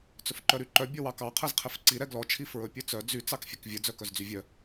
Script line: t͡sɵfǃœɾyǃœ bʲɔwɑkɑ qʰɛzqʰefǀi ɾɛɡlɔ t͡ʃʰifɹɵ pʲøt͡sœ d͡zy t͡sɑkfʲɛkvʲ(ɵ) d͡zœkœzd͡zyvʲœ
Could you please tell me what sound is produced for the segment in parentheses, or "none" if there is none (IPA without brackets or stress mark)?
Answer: ɵ